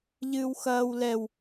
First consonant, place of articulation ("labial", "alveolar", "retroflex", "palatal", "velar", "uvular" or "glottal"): palatal